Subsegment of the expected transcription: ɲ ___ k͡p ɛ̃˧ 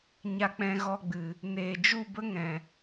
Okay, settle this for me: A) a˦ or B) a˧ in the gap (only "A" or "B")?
B